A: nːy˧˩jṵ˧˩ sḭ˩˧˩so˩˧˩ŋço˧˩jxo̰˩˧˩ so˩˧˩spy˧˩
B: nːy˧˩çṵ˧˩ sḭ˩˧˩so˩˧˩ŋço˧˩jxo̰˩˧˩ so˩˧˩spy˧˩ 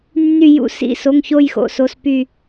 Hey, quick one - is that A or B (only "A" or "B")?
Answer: A